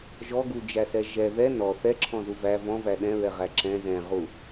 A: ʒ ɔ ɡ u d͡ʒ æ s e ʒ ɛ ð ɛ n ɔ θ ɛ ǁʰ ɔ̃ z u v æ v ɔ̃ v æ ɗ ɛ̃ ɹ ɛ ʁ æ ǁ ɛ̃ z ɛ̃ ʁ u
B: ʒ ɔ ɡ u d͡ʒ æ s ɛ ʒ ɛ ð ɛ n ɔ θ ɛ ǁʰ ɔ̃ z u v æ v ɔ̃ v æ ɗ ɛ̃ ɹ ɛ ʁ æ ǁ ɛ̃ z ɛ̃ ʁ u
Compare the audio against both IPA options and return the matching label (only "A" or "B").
B